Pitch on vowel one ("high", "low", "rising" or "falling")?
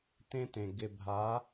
high